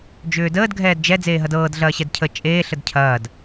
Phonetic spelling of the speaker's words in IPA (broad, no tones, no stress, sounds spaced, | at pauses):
d͡ʒ ʏː d əː d ɡʱ ɛː d d͡ʒ ɛ d͡z eː ɦ ɐ d ɤː d ɮ ɐː ɕ ɛ d cʰ ə t͡ʃʼ eː ɬ ə d cʰ ɐː d